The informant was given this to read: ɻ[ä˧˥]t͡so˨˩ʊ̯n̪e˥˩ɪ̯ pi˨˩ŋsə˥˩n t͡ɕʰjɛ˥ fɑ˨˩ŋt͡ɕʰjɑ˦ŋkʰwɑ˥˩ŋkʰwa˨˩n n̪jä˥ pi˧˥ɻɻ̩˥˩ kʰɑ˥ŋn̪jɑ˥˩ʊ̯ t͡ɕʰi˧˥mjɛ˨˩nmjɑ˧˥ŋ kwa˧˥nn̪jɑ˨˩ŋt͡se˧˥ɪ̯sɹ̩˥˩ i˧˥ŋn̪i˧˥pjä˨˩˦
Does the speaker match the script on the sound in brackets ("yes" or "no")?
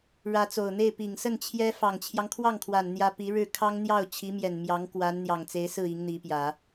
yes